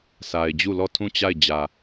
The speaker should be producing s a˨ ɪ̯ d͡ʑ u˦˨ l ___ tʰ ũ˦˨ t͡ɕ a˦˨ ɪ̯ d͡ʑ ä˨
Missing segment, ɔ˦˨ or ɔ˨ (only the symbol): ɔ˦˨